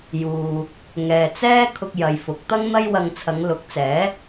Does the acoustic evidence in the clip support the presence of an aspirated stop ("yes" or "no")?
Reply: yes